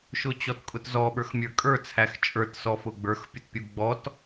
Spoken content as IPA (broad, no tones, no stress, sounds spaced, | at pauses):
ʃ ʊ t͡ɕ ɔ t kʼ ʊ t z ɔ ɓ ə˞ x mʲ ə˞ kʼ ə˞ t͡sʰ æ x t͡ʃʼ ə˞ t s ɔ f ʊ ɡ͡b ə˞ x pʲ ʊ t pʲ u ɡ͡b ɔ t